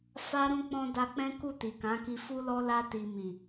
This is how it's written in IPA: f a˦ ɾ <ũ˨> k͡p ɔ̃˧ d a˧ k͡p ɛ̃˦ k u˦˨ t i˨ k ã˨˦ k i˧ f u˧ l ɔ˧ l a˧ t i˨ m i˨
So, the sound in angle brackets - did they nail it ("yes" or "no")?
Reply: no